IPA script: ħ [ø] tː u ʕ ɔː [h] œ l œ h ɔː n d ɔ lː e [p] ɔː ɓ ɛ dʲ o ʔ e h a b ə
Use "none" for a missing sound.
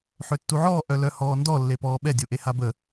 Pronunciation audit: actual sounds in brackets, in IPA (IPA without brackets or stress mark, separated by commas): ø, ʔ, p